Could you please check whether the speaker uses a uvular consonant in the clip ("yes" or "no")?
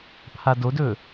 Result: no